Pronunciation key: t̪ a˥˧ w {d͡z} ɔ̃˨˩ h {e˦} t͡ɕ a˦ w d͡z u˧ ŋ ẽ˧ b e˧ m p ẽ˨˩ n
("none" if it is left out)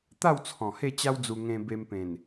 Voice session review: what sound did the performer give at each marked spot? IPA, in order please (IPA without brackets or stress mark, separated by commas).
t͡sʰ, e˥˧